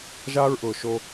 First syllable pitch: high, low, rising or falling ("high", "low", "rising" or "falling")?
high